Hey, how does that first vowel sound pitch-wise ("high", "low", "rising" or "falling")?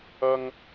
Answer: high